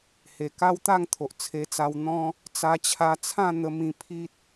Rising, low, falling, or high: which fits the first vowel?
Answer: low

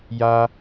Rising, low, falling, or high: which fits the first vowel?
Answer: high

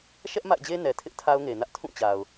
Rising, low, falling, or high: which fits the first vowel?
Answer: high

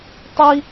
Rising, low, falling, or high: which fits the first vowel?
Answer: high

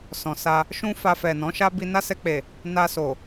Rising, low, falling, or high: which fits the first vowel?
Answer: low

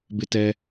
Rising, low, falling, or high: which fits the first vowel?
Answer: high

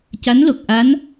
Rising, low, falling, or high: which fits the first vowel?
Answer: rising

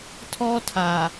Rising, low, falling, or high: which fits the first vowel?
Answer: high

